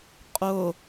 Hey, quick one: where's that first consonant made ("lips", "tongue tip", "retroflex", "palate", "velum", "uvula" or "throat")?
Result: uvula